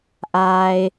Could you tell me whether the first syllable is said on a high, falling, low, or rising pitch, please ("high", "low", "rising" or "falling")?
low